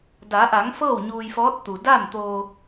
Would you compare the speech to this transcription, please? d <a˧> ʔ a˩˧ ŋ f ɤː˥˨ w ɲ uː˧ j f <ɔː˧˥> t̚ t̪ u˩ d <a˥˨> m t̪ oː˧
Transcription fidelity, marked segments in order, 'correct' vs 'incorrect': incorrect: a˩˧, correct, correct

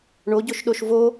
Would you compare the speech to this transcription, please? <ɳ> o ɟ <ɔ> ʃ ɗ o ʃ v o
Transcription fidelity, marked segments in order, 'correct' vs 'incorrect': correct, incorrect: o

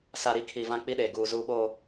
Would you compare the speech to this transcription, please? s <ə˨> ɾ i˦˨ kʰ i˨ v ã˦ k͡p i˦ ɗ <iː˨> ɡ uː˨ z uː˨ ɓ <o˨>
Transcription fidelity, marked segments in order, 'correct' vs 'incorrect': incorrect: a˨, incorrect: eː˨, incorrect: oː˨

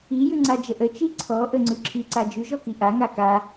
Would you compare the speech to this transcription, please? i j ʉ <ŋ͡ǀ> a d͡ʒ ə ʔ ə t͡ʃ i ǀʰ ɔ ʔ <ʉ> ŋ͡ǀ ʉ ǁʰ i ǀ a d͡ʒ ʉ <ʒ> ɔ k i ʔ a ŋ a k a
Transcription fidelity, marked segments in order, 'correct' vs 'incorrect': correct, incorrect: ə, correct

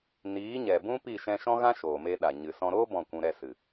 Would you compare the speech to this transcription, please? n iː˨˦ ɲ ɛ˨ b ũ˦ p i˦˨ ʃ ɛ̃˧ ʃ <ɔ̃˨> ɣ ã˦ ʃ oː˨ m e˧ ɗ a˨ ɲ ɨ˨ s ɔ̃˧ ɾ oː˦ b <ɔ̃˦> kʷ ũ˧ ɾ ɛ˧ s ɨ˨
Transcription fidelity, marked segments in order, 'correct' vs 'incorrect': incorrect: ɔ̃˦, incorrect: ɔ̃˦˨

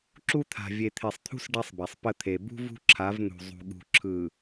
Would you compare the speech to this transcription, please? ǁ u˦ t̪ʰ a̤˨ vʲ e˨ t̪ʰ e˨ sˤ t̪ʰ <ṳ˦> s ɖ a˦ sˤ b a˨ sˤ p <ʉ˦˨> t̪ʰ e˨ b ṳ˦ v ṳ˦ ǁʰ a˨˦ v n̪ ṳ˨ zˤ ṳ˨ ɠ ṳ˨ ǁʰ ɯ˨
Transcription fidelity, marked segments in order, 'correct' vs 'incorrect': correct, incorrect: ə˦˨

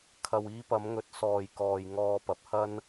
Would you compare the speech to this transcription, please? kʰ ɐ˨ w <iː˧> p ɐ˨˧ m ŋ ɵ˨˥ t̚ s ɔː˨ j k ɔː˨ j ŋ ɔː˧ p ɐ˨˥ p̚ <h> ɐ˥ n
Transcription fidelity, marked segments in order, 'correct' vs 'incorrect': correct, correct

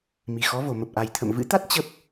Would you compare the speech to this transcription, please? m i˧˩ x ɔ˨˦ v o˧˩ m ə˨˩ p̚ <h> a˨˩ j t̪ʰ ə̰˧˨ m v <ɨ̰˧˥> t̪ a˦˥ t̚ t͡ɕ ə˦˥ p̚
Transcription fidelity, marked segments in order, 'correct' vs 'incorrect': incorrect: ʔ, correct

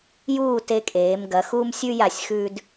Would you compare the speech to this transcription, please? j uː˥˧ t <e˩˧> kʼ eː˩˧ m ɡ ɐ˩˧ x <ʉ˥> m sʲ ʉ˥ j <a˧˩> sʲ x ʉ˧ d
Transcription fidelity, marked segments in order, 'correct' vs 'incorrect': incorrect: e˧, incorrect: u˥, correct

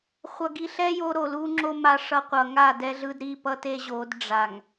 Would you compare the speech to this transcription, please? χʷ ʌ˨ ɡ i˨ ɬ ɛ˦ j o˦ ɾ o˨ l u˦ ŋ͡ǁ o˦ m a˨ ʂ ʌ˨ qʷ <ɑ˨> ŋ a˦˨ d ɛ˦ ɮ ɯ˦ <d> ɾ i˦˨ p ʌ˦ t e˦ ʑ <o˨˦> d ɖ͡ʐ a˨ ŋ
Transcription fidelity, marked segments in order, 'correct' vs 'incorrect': incorrect: ʌ˨, correct, correct

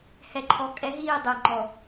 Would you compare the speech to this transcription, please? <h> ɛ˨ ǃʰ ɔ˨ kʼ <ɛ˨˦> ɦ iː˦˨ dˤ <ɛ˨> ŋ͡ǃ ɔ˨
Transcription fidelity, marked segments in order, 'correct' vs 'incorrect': correct, correct, correct

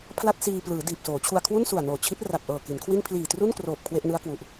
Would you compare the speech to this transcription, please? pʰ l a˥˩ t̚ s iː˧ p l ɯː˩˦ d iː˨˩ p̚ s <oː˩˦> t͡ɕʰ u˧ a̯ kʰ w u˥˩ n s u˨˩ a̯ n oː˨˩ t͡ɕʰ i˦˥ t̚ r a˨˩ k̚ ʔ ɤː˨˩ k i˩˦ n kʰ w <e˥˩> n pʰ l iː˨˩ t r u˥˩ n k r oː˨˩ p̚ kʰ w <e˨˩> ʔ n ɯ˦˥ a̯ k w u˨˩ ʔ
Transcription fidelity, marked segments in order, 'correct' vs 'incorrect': correct, incorrect: i˥˩, incorrect: e˥˩

